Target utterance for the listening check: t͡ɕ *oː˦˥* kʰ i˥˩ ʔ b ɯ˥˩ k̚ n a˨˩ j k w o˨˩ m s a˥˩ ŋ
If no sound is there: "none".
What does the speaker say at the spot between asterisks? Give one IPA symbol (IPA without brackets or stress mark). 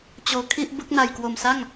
oː˧